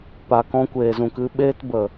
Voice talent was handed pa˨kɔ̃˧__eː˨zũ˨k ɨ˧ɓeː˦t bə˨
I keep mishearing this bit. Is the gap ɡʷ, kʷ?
kʷ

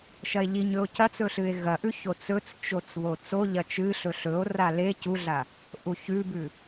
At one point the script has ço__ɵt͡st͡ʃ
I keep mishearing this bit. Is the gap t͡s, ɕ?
t͡s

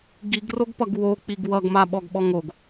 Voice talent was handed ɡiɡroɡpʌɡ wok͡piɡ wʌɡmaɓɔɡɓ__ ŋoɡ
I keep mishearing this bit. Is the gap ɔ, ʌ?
ɔ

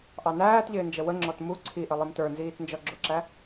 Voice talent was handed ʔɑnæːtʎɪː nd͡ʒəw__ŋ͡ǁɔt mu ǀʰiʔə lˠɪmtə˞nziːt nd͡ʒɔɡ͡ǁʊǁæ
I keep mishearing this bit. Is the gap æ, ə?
ə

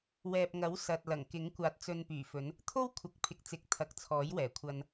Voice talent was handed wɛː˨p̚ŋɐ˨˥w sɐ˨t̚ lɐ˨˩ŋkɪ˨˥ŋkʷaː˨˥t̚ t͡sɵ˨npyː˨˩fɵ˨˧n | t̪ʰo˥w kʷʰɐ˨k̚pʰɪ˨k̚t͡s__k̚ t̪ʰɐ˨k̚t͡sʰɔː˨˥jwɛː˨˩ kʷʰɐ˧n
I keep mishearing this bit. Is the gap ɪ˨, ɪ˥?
ɪ˨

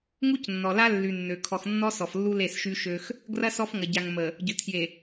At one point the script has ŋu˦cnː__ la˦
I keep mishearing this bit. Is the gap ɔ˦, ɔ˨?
ɔ˨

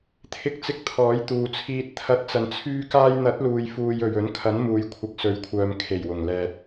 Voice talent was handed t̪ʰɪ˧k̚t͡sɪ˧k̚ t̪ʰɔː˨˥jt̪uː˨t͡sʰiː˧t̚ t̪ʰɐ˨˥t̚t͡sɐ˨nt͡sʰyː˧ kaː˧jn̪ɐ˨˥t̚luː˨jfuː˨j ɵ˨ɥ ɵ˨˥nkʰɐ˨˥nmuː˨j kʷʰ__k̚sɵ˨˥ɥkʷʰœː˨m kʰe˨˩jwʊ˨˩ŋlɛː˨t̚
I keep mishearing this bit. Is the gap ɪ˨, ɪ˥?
ɪ˨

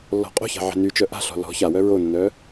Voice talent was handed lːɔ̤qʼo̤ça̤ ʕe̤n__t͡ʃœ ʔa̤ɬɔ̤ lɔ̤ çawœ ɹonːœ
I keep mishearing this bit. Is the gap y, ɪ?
y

